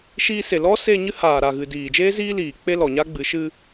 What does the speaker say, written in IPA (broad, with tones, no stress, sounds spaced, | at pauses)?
ʃ iː˧ s e˨ l ɔ˦ s e˦˨ ɲ ɨ˦ h aː˨ ɾ a˨ ɣ ɨ˨ d iː˨ d͡ʒ eː˦ z iː˦ l iː˨ k͡p e˦ l ɔ˨ ɲ a˦ ɡ͡b ɨ˨˦ ʃ ɨ˦